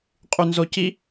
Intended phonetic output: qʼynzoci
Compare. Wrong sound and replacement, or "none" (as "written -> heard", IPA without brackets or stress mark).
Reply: none